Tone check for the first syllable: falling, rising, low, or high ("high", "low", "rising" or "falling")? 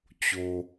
low